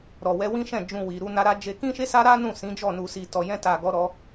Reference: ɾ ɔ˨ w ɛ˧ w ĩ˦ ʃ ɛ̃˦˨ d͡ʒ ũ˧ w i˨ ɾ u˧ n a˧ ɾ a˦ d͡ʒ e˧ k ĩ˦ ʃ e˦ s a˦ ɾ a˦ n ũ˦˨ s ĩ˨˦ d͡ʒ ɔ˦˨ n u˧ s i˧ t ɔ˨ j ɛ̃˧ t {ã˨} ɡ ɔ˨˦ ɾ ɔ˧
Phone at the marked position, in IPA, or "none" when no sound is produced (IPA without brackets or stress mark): a˨